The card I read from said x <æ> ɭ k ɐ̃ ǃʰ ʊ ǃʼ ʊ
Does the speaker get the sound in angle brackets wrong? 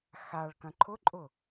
yes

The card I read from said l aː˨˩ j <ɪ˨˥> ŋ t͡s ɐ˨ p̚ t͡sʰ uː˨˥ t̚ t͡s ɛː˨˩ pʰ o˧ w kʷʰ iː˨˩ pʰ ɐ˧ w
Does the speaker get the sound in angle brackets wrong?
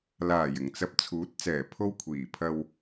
yes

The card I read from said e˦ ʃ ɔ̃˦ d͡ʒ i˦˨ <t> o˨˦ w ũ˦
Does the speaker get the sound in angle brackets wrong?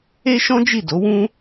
yes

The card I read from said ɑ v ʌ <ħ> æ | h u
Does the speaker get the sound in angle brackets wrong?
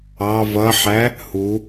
no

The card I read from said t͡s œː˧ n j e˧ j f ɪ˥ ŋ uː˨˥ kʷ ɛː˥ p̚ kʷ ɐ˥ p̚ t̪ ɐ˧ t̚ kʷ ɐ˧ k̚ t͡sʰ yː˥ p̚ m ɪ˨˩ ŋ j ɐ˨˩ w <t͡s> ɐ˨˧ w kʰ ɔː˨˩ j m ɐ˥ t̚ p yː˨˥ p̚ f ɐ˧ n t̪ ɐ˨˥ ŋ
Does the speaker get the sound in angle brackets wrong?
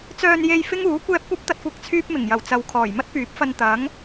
no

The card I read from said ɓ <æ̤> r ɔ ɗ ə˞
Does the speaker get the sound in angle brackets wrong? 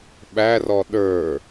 yes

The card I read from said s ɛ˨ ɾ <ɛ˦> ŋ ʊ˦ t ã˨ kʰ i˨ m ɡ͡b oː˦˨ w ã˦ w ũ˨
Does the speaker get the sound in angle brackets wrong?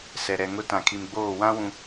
yes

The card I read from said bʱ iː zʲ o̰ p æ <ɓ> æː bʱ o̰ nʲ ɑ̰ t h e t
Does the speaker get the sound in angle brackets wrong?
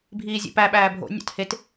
no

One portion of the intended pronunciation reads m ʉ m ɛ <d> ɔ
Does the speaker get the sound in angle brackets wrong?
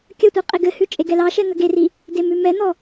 yes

